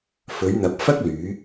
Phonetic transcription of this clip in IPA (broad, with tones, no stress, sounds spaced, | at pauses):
f ɵ˨˧ ɥ n̪ ɐ˨ p̚ f ɐ˥ k̚ l yː˨˧